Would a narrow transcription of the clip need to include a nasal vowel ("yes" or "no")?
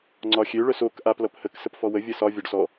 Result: no